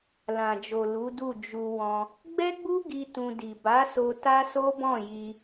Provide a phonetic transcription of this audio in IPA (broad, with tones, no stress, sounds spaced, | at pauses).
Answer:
l ã˨ d͡ʒ o˨ l u˨˦ d u˦˨ d͡ʒ u˧ w ɔ̃˧ | ɡ͡b ɛ˦ ɡ͡b u˦ ɡ i˧ t ũ˧ d i˨ b a˨˦ s o˧ t a˦ s o˦ b ɔ̃˦˨ j i˧